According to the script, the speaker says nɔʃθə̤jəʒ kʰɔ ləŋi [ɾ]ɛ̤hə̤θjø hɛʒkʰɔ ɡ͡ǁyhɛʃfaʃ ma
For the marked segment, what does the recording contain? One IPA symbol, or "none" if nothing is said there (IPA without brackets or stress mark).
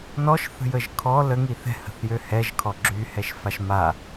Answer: θ